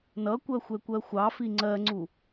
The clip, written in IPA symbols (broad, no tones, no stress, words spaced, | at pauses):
nʌkʷɜ xʷɛkʷɜxʷɑfi ŋ͡ǀɜŋ͡ǀu